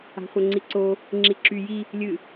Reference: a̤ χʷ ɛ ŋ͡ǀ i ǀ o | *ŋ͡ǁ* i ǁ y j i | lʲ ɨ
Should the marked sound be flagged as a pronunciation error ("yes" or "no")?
no